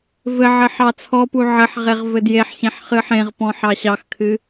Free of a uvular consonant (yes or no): no